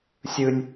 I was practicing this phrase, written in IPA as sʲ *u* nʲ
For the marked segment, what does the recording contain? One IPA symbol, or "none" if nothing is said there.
ɯ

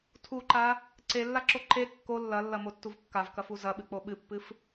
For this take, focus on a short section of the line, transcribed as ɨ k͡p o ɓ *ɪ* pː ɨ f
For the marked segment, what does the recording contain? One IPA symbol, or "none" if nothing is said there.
ɨ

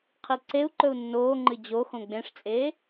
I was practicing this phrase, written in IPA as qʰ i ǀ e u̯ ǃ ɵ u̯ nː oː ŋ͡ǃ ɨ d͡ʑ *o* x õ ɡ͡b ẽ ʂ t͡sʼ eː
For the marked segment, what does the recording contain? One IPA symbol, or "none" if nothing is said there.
o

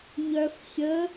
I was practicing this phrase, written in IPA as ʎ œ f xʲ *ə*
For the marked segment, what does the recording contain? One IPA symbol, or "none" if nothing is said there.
ə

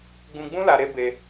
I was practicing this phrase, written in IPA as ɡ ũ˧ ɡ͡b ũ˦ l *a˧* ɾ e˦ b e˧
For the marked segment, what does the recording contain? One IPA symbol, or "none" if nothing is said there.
a˧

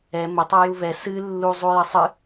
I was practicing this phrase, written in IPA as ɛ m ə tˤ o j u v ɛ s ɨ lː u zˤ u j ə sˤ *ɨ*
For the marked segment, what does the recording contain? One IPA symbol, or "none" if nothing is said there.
ɨ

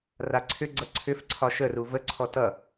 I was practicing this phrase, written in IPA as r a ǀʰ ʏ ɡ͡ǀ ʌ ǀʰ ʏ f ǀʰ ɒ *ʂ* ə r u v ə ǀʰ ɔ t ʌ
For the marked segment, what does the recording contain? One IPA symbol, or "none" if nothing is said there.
ʃ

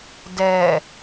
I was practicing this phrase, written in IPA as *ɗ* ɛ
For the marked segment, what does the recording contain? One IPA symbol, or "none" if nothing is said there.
d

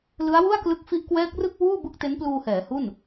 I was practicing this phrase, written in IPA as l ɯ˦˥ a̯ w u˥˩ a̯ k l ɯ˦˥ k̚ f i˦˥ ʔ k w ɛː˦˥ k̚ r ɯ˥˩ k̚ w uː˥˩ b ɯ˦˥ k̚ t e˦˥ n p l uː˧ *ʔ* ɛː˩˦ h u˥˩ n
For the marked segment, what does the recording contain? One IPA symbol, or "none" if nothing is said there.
h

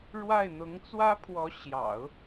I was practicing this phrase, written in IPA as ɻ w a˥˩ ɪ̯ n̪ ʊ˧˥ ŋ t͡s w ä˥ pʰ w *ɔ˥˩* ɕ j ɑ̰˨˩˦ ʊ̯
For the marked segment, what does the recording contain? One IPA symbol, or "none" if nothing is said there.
ɔ˧˥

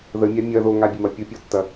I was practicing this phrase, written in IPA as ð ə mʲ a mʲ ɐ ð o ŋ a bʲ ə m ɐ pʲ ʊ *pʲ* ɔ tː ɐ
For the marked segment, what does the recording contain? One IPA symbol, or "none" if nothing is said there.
pʲ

